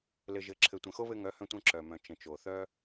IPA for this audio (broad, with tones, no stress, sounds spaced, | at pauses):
l ɘ˨ ʒ ɘ˨ ǁʰ ɘ˨ tʷ ə̃˨ x o˦ β ɘ˧ ŋ œ˨˦ h œ̃˧ tʷ œ̃˧ ǁ œ˨ m œ̃˨ t͡ʃ ə̃˨ t͡ʃ o˨ θ œ˦